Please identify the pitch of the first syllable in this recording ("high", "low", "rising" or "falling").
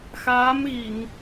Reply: rising